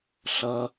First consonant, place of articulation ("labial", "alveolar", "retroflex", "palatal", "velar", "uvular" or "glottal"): alveolar